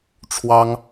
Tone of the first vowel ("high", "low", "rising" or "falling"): high